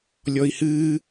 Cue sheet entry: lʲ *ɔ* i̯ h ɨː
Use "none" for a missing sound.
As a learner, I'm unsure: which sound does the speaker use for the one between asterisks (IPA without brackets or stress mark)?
ɔ